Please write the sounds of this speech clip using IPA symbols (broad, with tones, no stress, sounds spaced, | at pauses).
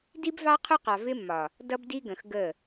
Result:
d i˦ b v ɑ˦ qʰ ʊ˦ q ɑ˨ v ɪ˦ mː ɒ˨ | d ʌ˦ b d i˦ ɡ ə̃˨ x ɡ ə˦˨